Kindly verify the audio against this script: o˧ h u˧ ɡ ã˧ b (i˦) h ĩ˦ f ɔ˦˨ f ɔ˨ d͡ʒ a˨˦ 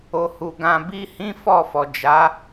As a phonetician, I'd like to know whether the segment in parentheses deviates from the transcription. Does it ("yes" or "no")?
no